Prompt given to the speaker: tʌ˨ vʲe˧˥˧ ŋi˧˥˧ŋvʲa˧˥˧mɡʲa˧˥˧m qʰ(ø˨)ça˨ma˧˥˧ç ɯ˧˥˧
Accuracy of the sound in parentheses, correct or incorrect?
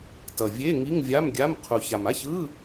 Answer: incorrect